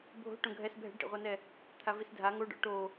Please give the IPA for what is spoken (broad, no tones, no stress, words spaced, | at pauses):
bʱo̤ ʈõɡʱɛs bʱɛ̤ɖʈḛʁʷanɛ | t̪ʰavisdʱa ŋoɖɔ̰ ʈo